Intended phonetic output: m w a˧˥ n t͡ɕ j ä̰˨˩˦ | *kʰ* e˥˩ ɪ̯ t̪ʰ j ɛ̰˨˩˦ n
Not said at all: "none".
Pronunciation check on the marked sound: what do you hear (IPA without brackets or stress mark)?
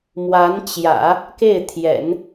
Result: k